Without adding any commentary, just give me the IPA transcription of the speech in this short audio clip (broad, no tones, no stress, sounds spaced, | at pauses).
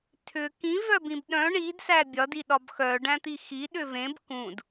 tʰ ʏ k ĩ v œ b ĩ b ɗ œ̃ ɳ i d s æ bʲ ɒ d i ɗ ɒ b x œ ɖ æ̃ t̪ i x i ɗ ʏ v ẽ b k ũ d